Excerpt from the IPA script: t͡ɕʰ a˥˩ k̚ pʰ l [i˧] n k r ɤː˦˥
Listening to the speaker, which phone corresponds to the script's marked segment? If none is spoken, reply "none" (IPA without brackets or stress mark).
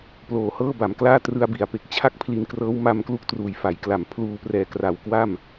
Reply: i˧